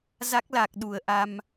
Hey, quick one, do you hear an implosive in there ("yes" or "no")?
yes